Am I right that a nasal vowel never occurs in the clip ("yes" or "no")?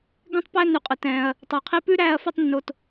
no